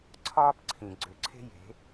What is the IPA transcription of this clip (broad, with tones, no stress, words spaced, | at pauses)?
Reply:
ǀʰɒː˦pǀʰĩ˨ɡ͡ǀʏ˨˦ǀʰe̤˦ je̤˨˦